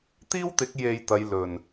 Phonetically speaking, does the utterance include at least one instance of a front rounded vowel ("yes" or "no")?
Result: no